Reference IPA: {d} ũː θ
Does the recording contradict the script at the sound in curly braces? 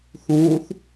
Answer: yes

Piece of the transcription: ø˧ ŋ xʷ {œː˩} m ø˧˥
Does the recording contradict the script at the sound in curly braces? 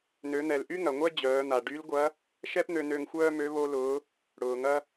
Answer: yes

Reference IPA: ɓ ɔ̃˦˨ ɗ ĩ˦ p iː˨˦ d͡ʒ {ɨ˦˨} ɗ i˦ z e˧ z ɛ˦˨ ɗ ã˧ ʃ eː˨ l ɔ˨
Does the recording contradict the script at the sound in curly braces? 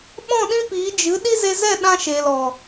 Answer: yes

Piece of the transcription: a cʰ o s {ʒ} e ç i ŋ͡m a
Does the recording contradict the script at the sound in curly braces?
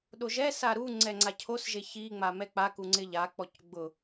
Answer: no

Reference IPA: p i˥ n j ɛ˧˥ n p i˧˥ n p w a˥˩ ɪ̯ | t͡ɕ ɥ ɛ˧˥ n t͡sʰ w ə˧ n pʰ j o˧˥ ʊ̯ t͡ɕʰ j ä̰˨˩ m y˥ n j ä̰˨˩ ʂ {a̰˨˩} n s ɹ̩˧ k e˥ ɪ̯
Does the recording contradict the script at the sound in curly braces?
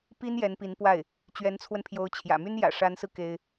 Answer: yes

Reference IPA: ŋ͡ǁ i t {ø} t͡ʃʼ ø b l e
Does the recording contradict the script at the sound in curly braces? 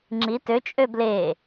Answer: no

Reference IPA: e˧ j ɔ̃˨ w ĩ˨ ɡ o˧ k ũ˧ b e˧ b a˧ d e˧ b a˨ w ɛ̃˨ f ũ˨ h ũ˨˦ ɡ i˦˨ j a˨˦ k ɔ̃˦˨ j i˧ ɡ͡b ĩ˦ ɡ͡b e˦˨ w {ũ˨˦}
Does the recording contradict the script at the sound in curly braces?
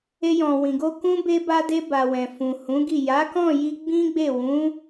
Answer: no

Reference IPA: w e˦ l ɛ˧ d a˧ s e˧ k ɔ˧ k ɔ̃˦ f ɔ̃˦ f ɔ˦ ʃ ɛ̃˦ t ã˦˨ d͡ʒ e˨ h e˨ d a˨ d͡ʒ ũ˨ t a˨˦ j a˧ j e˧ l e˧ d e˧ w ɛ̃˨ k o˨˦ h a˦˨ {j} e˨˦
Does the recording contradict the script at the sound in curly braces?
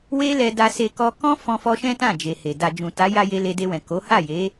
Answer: no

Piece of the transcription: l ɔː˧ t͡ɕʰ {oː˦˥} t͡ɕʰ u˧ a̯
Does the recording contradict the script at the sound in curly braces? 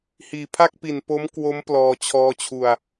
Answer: yes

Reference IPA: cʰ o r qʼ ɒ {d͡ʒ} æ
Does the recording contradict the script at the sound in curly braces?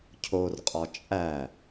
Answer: yes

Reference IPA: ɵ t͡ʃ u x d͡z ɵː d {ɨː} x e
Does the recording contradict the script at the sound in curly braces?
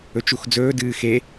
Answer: no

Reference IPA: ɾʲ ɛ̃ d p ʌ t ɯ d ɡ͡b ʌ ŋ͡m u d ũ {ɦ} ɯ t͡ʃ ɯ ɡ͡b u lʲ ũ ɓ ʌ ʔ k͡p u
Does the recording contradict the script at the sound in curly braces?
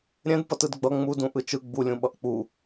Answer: yes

